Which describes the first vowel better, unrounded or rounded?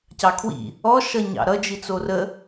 unrounded